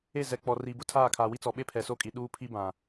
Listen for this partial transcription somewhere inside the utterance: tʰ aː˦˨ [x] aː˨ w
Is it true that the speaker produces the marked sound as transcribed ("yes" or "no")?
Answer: no